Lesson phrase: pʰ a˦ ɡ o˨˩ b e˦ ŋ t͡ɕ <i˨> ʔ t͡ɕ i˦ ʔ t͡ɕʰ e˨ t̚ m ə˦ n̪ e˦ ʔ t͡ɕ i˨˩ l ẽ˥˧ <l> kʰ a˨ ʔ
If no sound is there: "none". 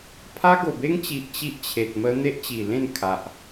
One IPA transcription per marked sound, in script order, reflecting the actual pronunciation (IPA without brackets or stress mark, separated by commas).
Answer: i˨, n